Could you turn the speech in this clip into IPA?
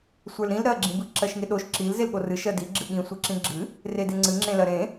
sʷ ə˞ l ɾ ĩ l ɾ ɜ ɡ͡ǁ ĩ b ɨ ǁ ɜ ʃ ŋ e ɗ o ʃ ǁ i l z e l ɠ o r ɨ ʃ ɜ d i ɡ͡ǁ ɨ ɠ ĩ sʷ ɨ ǁ ĩ ɡ͡ǁ ɨ | r e d e ŋ͡ǀ ɨ ŋ͡ǁ ẽ l ɜ ɾ ẽ

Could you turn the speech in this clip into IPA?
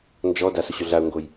n d͡ʒ ɔ d a s ʊ ɕ ʊ ɮ a ʊ̯ ŋ ɡ o j

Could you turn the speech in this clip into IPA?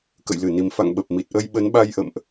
k ə̰˧˨ j l ɨ˧˩ n i˨˩ m f a̰˧˨ ŋ ɓ ə˨˩ p̚ m i˨˩ t̚ ʔ ə˧ j ɓ ə˨˦ n ɓ a˧ j ʔ ə̰˧˨ m ʔ

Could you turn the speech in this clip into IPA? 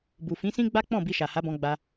b u˨ f ĩ˨˦ s ĩ˦ ɡ͡b a˦ k͡p ɔ̃˦˨ b i˧ ʃ a˨ h a˨˦ b ɔ̃˧ ɡ͡b a˧

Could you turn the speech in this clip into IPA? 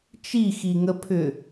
t͡ʃ i x i ŋ ə pʰ ʏ

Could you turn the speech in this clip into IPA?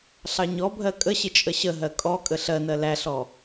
ɬ ɑ ɲ ɔ bʱ ɜ kʼ ə ɕ ɪ t͡ʃʼ ə ɕ ə ɦ ɜ kʼ ɔ kʼ ə ɬ ɜ n ɜ l æ ɬ ɔ

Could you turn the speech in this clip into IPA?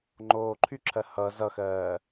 ŋ͡ǃ oː ǃʰ y ǁʰ ɜ h ʌ z ʌ x ɜː

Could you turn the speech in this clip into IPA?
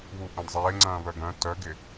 β u ʔ œ̃ d zˤ ɪː ŋ͡ǀ ɐ̃ː β œ ɡ œ̃ t œ ɡ ɪ

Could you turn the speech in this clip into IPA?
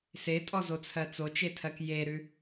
s e tʼ ɔ z o t͡sʰ ɜ t͡s o t͡ʃ e tʰ ɜ k j e ɾ ʉ

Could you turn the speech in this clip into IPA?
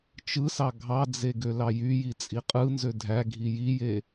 t͡ʃ ɯ s ɑ ɡʱ ɑ d͡z e ɡ ø l ɑ j y j i t͡sʼ i qʼ ɯ n z ø dʱ æ ɡʱ i j i j e

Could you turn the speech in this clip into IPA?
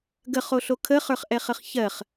ɡ ə χ o ɬ o kʰ ə χ ə˞ χ ʔ ɛ χ ə χ ç ɜ χ

